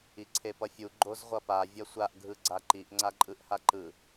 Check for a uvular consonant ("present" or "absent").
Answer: present